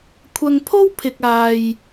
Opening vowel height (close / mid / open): open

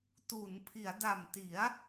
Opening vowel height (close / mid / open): close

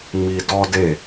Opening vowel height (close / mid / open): close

